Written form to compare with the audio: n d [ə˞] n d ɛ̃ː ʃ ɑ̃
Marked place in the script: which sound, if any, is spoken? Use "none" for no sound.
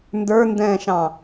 ə˞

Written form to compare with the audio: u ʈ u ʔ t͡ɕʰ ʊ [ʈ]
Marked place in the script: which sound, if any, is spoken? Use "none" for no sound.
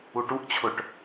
ʈ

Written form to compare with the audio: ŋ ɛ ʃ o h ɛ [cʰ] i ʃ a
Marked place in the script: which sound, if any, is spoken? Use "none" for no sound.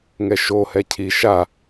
cʰ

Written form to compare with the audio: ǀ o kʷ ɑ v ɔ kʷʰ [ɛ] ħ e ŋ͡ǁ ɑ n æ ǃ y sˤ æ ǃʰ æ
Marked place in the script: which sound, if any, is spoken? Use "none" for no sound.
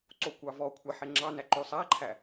ɛ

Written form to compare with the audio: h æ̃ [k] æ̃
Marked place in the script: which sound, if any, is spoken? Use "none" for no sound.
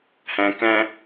k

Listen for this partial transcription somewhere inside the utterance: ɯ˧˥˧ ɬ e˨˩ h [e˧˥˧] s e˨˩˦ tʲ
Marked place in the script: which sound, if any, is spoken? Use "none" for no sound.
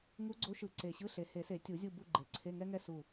e˨˩˦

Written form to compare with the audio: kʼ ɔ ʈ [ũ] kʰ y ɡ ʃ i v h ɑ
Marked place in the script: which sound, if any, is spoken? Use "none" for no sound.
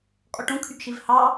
ũ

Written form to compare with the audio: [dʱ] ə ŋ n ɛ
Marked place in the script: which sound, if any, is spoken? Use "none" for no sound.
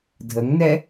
dʱ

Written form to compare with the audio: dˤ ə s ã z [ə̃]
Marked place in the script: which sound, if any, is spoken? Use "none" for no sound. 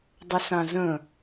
ə̃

